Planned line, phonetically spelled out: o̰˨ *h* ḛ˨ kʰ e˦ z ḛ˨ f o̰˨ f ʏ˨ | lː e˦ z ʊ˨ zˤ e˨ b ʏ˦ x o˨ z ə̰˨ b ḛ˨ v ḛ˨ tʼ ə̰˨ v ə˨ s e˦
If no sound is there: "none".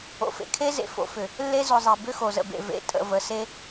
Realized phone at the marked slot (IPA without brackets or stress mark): f